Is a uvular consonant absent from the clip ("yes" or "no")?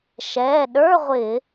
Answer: no